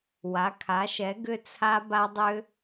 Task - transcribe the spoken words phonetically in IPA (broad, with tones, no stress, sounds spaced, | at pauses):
w a˩˥ kʰ a˩˥ ʃ ɛ˩˥ ɡ ʏ˦˥ t͡sʰ a˦˥ b a˦˥ dˤ ʏ˦˥